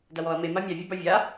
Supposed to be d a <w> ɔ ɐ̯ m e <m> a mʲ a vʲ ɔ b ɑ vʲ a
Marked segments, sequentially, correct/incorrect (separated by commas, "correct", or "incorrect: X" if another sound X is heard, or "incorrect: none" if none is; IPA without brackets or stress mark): correct, correct